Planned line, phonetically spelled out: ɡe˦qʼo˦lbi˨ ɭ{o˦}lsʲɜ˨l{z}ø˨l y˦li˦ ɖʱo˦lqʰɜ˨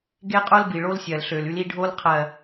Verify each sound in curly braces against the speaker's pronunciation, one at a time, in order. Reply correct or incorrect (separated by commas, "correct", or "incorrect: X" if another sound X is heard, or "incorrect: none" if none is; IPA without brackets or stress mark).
correct, incorrect: ɬ